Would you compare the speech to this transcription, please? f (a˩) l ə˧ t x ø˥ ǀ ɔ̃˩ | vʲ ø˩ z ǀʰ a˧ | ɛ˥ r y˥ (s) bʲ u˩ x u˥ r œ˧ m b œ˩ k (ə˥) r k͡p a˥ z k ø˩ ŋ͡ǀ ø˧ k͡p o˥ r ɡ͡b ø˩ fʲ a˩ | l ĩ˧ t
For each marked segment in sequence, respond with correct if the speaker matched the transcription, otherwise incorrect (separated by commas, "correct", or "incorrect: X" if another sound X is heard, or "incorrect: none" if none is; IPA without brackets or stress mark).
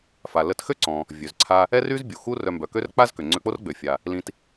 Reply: correct, incorrect: z, incorrect: ø˥